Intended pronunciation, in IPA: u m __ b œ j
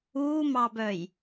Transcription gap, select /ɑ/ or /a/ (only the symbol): ɑ